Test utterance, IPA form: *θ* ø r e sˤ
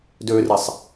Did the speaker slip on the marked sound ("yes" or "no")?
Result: yes